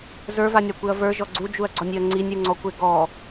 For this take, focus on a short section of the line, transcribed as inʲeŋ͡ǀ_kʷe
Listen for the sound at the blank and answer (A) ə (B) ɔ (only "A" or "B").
B